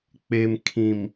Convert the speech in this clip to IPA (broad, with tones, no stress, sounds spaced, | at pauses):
k͡p e˨ m kʰ ĩ˨ m